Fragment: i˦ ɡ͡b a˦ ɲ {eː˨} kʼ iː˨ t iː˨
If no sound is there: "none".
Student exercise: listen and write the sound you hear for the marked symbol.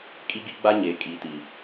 eː˨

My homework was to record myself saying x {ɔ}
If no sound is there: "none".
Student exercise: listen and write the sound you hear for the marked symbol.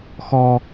ɔ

